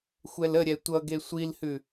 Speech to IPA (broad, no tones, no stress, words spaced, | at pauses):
xʷɛləɾʲɛ tʷʌɡe sʷilhʉ